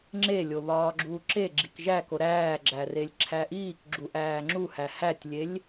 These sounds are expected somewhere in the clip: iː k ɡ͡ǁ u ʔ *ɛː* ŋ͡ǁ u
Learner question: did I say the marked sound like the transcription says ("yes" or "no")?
no